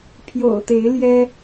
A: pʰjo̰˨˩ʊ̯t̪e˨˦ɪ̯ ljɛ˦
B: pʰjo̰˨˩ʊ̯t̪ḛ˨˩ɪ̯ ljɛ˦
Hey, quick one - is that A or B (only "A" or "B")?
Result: A